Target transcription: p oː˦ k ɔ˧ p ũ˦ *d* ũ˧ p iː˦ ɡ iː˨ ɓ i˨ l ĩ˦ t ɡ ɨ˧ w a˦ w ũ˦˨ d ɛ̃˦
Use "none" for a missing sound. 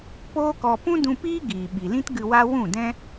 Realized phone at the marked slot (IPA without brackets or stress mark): d